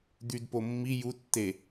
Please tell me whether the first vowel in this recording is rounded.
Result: yes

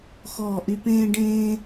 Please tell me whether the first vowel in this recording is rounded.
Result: yes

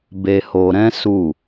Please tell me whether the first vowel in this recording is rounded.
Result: no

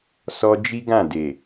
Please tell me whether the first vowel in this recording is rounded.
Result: yes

